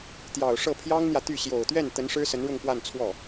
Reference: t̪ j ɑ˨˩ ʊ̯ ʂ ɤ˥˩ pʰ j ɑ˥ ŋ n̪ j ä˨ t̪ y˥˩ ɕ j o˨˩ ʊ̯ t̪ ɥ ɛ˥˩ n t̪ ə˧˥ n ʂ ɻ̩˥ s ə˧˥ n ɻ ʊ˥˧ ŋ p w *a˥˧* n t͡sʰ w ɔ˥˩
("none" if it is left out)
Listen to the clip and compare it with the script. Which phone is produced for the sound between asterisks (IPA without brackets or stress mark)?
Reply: a˥˧